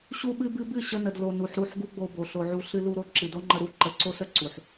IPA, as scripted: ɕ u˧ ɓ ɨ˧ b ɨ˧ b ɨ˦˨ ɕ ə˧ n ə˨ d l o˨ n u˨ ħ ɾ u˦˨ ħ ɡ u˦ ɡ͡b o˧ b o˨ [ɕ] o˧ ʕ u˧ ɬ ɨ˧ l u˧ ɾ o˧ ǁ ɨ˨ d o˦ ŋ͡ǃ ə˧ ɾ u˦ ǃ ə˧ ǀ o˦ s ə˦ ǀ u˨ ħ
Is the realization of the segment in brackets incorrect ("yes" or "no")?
yes